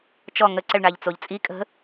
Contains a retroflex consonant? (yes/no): yes